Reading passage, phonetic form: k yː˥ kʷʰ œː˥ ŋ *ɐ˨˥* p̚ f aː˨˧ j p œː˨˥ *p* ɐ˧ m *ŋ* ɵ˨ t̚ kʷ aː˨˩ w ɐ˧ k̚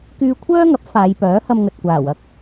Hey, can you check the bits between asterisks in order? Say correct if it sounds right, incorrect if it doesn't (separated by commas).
correct, incorrect, correct